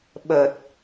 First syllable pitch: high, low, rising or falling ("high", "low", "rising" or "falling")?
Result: low